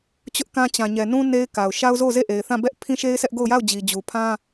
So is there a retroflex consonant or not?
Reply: no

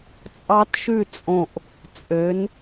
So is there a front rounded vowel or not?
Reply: yes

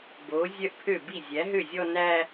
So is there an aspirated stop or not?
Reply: yes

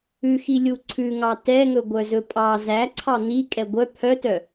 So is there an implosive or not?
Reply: no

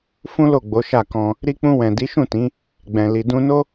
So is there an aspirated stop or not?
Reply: no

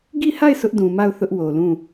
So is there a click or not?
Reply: no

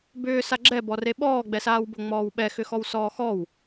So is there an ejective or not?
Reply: no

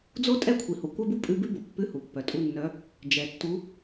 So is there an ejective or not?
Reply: yes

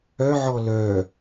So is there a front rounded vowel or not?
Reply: yes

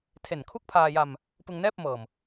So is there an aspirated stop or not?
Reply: yes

